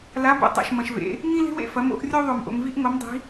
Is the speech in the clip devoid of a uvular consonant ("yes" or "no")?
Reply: yes